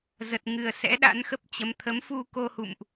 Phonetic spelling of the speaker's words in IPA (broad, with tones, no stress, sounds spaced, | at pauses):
z ə˨˩ t̚ ŋ ɨ˨˩ ə̯ s ɛ̰˧˥ ɗ a̰˧˥ n x ə˦˥ p̚ t͡ɕ ə˨˦ m t̪ʰ ə˨˦ m f u˧ k o˧ h ṵ˧˨ m ʔ